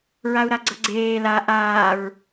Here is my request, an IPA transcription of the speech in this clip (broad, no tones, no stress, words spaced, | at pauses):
ɹau̯ɾaɡ͡ǀʌɡ͡ǀeː la ʔaːɹ